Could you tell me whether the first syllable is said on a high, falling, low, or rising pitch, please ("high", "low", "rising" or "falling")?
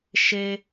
high